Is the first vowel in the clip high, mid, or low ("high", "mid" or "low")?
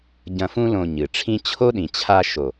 low